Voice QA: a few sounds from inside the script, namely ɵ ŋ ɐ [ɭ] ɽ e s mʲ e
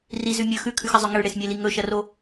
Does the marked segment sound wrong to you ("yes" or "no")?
no